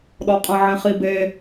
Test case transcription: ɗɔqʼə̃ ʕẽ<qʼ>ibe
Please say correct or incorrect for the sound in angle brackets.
incorrect